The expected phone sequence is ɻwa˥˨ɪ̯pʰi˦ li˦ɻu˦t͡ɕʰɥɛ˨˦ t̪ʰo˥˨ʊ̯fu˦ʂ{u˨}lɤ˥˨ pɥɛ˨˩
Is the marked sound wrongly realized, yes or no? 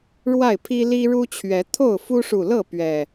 no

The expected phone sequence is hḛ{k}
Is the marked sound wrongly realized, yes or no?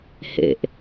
yes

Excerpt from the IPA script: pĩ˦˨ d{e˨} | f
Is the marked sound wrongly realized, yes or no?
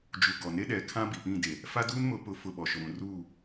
no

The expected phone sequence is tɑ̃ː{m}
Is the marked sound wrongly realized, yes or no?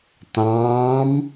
no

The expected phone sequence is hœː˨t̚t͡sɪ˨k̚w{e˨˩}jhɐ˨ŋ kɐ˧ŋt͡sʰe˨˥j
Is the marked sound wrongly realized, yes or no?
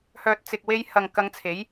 yes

